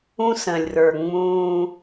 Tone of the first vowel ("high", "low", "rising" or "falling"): high